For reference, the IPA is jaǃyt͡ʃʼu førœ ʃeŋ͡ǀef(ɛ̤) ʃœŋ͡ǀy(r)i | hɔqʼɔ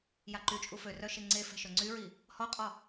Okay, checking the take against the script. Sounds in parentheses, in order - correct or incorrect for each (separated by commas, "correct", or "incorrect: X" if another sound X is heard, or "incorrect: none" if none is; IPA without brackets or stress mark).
correct, incorrect: ɹ